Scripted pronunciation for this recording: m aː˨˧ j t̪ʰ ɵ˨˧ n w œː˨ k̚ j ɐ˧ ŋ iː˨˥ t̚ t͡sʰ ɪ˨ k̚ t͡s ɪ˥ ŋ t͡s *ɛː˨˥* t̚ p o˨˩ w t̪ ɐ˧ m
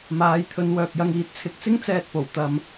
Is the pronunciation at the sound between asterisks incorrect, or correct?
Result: incorrect